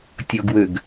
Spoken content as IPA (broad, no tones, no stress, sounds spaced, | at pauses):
tʲ ɔ ɡ w ø ɡ